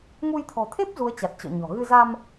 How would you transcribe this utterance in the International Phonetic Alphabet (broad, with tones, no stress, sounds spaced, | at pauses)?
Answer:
ŋ u˧ j t̪ʰ ɔ̤˨˩ t̪ʰ e˦˥ p̚ z u˨˦ ə̯ t͡ɕ a˨˩ t̚ t͡ɕ ɔ̰˧˨ ɲ ɔ̤˨˩ ɣ ɨ˧ z a˧ m